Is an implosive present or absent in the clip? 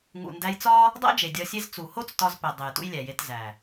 absent